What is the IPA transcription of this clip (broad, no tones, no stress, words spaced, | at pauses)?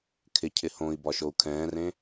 kʰɪcʰɪ hõi̯ bɒʃou̯kʰɛ̃ːrẽ